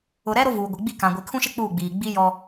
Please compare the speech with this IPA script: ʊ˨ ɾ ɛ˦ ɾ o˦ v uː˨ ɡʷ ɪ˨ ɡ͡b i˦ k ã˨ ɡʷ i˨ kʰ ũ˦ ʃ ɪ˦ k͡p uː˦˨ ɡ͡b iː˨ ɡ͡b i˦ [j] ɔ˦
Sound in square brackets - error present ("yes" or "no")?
no